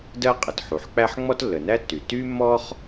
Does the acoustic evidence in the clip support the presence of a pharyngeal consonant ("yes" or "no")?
yes